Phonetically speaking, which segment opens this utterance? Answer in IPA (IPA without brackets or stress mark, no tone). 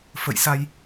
f